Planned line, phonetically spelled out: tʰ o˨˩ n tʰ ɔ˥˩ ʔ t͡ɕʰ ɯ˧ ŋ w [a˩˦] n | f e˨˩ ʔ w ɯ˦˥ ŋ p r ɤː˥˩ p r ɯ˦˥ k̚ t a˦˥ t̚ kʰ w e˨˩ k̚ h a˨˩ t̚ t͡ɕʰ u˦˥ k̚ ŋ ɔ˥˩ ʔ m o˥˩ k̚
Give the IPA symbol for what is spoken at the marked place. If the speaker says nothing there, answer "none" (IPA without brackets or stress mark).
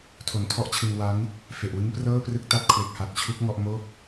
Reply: a˦˥